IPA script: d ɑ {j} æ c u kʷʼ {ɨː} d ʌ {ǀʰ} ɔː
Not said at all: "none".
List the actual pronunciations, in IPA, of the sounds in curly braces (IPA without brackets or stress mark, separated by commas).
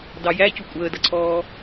j, əː, ǀʰ